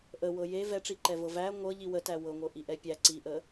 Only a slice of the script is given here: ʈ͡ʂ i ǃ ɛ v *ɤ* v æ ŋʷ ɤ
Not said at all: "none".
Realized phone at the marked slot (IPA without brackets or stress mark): ɤ